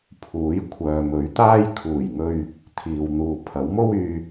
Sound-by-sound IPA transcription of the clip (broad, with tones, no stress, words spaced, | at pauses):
pʰuː˨˥j kʷʰœː˨mɵ˨˥ɥt̪aː˥j kʰuː˨˩jŋɵ˨ɥ | t̪ʰiː˨wn̪uː˨ pʰɐ˨˥wmo˥w yː˧